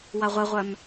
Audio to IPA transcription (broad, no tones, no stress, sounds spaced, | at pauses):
w a ʁʷ ɛ ʁʷ œ m